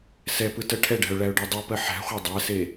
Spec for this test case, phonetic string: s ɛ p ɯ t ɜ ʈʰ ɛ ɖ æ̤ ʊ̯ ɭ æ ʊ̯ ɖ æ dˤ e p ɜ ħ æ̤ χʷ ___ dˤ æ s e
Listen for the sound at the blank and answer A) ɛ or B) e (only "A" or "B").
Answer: A